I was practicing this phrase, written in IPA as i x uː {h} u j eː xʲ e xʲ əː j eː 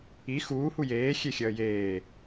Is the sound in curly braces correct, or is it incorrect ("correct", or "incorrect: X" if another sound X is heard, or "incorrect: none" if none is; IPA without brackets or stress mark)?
correct